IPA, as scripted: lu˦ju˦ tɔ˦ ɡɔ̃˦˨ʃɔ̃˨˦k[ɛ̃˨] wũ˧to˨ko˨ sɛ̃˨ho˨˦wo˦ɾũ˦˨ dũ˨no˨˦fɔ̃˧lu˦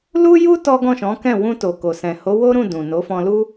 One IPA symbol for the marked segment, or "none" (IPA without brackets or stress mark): ɛ̃˦˨